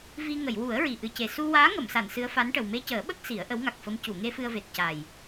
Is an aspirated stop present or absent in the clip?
absent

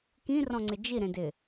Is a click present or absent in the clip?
present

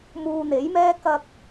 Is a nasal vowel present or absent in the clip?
absent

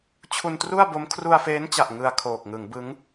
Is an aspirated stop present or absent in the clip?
present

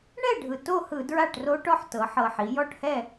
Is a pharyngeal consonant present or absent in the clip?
present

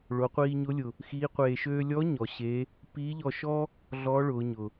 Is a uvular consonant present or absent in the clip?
present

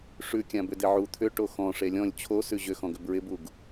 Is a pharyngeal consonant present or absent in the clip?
present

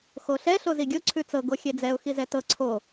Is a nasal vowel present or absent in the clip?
absent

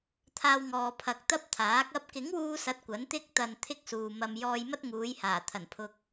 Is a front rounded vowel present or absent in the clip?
absent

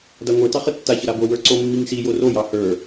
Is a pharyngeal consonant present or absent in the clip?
absent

